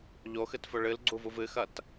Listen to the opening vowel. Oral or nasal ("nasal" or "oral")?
oral